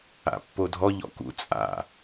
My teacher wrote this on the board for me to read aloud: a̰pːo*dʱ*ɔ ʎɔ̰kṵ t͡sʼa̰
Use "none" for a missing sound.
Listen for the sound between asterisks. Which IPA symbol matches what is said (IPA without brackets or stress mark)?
dʱ